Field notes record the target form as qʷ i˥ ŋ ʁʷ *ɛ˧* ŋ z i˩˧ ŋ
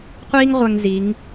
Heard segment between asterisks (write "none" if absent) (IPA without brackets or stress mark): ɛ˧